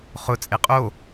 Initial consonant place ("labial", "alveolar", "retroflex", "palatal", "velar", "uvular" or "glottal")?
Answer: uvular